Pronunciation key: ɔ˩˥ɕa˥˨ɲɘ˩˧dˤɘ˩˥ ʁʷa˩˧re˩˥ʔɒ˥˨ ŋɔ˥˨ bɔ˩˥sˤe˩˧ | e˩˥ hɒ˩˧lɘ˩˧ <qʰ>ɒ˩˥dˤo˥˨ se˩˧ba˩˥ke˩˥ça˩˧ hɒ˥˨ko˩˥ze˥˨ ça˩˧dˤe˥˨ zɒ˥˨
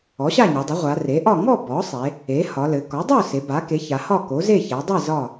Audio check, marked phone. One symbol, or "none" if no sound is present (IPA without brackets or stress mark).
k